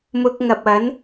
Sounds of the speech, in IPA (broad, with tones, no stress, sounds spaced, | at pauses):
m ʊ˧ k̚ ŋ ɐ˨ p̚ ɐ˨˥ n